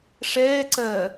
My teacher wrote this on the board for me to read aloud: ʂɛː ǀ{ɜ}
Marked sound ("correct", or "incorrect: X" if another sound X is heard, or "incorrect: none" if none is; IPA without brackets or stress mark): correct